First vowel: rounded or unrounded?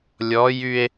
rounded